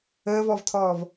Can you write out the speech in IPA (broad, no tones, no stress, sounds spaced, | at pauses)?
əː v ɔ v tʰ ɔː v